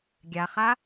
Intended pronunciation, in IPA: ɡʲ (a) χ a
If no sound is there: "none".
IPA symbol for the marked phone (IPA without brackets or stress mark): a